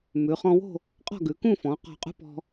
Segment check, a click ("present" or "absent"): absent